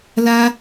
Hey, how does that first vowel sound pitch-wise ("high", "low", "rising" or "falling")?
high